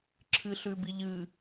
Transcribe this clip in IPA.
ǁʰ ɨ ɬ ʉ b i ʎ ɨ

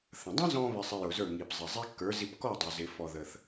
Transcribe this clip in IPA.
θ ə̃˩ dˤ ə̃˥ z ɔ̃˧ β ɪ˧ sˤ ɪ˧ j ʊ˩ z ə˞˥˩ ŋ i˩ p zˤ ɪ˩ zˤ i˥ kː ə˞˩˥ z i˧ p k ɔ˥˩ dˤ ʊ˩ z ɪ˩ f ɔ˧ ð ə˧ θ

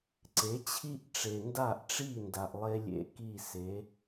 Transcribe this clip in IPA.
ǀ e˩˥ t͡ɕʰ i˥ ʔ ʈ͡ʂ e˩ n d a˥˩ ʔ ʈ͡ʂ i˥˩ n d a˩ ʔ lˠ e˥ lʲ ḛ˥˩ k i˥˩ s e˩˥

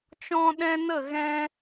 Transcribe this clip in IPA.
t͡ʃ ɔ̃˦ ɗ ɛ̃˦ n ə˦˨ ɣ ɛ̃˧

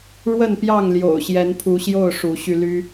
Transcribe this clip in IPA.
ɻ w ə˥˨ n p j ɑ˥˨ ŋ l j o̰˨˩ ʊ̯ ɕ j ɛ˨˦ n pʰ u˨˦ ɕ j o˥˨ ʊ̯ ʂ u˨˦ ɕ y˧ l y˦

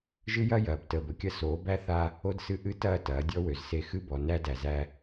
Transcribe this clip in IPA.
ʒ ɨ˦ j ɐ˦ j ɐː˨ b t əː˨ b ə˨ kʲ ɐ˦ s oː˨˦ b æ˦ θ a˦ | o˦ d s ɨ˦ ʔ ɨ˦ t ɐː˦˨ t ɐː˨˦ dʲ ɔ˦ w ø˨ z s e˦˨ x ɨ˦ b ɔ˨ n æ˦ d æ˨ z æ˦

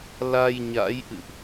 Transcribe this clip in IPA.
l a˧ j ɲ a̰˧˥ j ʔ ɨ̰˧˨ ʔ

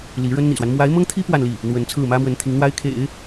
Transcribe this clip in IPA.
l i˧˥ ɻ ə˥ n n̪ ḭ˨˩ s w a˦ n m w a˧˥ ɪ̯ m ɤ˥ ŋ t̪ʰ i˥ p w a˥˧ n l i˥˩ | n̪ w ə˧˥ n t͡sʰ ɹ̩˥˩ m ä˥ m w ə˧˥ n t̪ʰ i˧˥ ŋ n̪ w a˥ ɪ̯ kʰ ḛ˨˩˦ ɪ̯

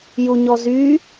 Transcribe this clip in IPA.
j u ɲ ɔ z y

